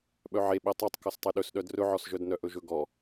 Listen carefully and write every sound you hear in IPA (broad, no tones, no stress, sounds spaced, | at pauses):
ɓ œ ʕ e ɓ e tˤ o tˤ k ɔ s tˤ e ɗ ɵ s ɗ œ d r ɵ ʕ ɔ s ʒ œ d n œ ʔ ɵ ʒ ɵ ɡ ɔ